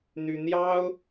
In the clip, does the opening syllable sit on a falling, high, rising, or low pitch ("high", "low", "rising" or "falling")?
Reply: high